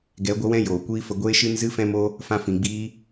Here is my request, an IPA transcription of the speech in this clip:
ɡ ɛ˨˦ ɡʷ ə˧ w ɛ̃˦ j oː˨ kʷ iː˦ f ə˧ ɡʷ eː˦ ʃ ɨ˦ n z ɨ˦ f ɛ̃˦ m o˦ | f ã˧ f ĩ˨ ɡ͡b iː˦

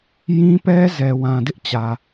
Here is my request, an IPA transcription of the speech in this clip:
j ĩ˦ p ɛ˦ z ɛ˨ w ã˨ d ɪ˦ ʔ t͡ɕ ä˨

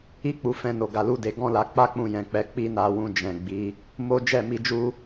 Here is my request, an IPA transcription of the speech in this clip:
i˦ k͡p u˧ f ɛ̃˦ n o˧ ɡ a˧ l u˦ d e˧ ɡ ɔ̃˦ l a˧ k͡p a˦ k͡p ũ˧ j ɛ̃˨ k͡p ɛ˨˦ k͡p i˦ n a˧ w ũ˧ d͡ʒ ɛ̃˨ ɡ͡b i˨˦ | m o˦ d͡ʒ ɛ˦˨ m i˧ d͡ʒ u˦

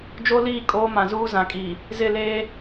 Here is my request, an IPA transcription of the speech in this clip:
d͡ʒ o˦ l iː˦˨ kʼ oː˦ m ã˨ z uː˦ z ã˨ kʼ iː˨ | z ɪ˦˨ l eː˦

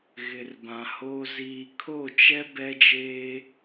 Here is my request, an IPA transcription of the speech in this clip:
ɣ ɪ˨ r b ã˨ h o˨ z iː˨ kʰ o˦˨ t͡ʃ ɛ˦ b ɛ˦ d͡ʒ eː˦

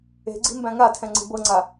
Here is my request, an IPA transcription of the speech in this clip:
e̤ ɡ͡ǀ i̤ m b æ̃ ŋ a tʰ ɛ̃ ŋ͡ǀ i̤ b ɤ ŋ͡ǀ a

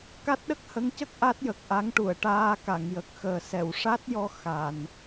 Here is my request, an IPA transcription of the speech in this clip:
k a˦˥ t̚ ɗ ə˦˥ k̚ h ə˧˥ ŋ c ə˦˥ k̚ ʔ a˦˥ t̚ j ə˨˩ k̚ ʔ a˧˥ ŋ ʈ u˨˩˨ ə̯ ʈ aː˧ k a˨˩˨ ŋ j ə˨˩ k̚ x əː˨˩ s ɛ˨˩˨ w ʂ a˦˥ t̚ j ɔ˧ x a˨˩˨ n

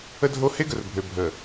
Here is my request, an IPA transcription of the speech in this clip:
ə˦ dʱ o˦ h e˦ ɡ ə˨ r bʱ ø˨ bʱ ə˨

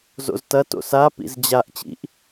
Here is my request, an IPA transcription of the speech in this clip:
z o̰ z t ɐ t o̰ s a p ḭ z d͡ʑ a ʔ t͡ɕ ḭ ʔ

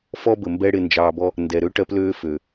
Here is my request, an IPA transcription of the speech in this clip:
f ɔ˦ b ə˨ m b ɛ˦ ɽ ɪ˧ n d͡ʒ ɑː˧ b ɔ˦ | n d ɛ˨ ɾ ø˦ ʈ ɜ˦ p l øː˦ f ø˨

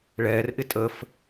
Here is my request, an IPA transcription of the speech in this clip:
ɭ ɛː r ʔ ɪ tʼ ə f

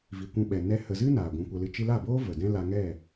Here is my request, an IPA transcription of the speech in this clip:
v i˨ kʷ ũ˧ ɓ ɛ˨ n ɛ˦ h ə˨ z ɨ˦ n aː˨ ɡʷ ũ˧ kʷ ə˧ l ɨ˧ t͡ʃ ɨ˧ l a˦˨ b oː˦ v ə˨ d ɛ̃˦ l a˧ ŋ ɛ˦˨

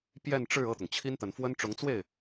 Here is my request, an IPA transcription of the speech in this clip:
p j ɛ˥˧ n ʈ͡ʂ ɻ̩˥˧ ɤ˥˩ t̪ ʊ˩ ŋ t͡ɕʰ i˥ n t̪ ə˧˥ n f w ə˥ n ʈ͡ʂ ʊ˧˥ ŋ t͡s w e˥˩ ɪ̯

